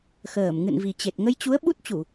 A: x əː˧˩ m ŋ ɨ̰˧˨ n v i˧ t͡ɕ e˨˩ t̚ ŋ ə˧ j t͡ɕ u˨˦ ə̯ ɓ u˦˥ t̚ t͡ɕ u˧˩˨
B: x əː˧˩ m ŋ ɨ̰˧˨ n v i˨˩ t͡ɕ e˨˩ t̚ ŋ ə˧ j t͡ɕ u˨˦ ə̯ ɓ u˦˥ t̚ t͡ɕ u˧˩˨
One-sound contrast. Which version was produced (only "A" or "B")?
B